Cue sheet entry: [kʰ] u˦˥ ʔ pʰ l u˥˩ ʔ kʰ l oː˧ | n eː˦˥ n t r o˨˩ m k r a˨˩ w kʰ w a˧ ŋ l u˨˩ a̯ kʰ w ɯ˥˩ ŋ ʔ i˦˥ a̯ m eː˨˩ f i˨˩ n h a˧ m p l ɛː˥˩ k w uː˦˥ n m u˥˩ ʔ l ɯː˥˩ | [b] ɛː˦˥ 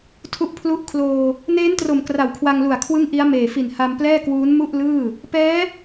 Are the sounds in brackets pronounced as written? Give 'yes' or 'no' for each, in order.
no, no

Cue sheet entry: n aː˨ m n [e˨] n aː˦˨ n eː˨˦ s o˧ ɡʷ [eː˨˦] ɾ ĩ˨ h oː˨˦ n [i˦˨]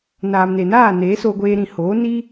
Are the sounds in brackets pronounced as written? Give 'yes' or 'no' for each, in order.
yes, no, no

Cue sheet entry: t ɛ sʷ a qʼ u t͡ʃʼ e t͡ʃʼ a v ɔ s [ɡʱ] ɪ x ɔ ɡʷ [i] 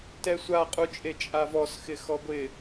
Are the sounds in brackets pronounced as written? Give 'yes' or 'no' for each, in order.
no, no

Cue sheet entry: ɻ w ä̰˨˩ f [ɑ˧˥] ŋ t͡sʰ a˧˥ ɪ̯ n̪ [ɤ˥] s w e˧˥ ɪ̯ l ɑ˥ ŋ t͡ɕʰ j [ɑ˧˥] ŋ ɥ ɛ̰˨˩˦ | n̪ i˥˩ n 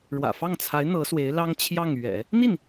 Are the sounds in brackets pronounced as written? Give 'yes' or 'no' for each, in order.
no, no, no

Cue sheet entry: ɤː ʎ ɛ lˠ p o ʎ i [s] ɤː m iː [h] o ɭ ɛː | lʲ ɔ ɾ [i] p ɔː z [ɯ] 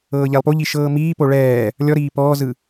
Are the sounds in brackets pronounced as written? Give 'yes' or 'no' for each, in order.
no, no, no, yes

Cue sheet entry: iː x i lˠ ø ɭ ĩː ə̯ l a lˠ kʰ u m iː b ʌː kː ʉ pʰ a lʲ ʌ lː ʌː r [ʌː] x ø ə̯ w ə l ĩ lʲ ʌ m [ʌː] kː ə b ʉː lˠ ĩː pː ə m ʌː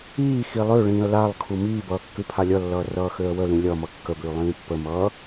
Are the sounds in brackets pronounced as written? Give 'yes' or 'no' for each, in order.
yes, no

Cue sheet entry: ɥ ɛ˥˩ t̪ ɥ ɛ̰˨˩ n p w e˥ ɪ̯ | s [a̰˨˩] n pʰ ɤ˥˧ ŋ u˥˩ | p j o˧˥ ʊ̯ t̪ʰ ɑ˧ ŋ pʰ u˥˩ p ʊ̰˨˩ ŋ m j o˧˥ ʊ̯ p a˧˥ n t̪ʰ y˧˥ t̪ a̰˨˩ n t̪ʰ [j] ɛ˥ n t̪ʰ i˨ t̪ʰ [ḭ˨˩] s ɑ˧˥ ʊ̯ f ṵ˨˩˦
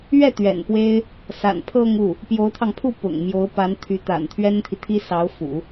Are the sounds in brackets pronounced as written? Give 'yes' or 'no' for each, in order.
yes, no, no

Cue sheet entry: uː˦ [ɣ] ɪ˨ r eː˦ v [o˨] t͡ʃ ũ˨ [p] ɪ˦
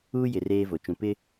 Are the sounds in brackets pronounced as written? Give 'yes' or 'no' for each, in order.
no, yes, yes

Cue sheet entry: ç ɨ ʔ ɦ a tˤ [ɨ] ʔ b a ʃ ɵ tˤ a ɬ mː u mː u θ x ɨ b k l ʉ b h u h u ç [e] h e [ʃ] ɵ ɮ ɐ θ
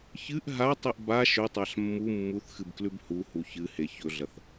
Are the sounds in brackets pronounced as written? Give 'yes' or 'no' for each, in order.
no, no, no

